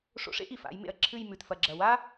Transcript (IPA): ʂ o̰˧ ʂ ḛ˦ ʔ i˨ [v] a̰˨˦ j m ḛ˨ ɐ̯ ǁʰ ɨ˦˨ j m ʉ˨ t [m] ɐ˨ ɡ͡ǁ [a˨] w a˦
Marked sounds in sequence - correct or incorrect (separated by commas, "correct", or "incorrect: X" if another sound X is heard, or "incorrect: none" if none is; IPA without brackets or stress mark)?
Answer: incorrect: f, incorrect: f, incorrect: ɐ˨